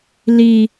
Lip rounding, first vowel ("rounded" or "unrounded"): unrounded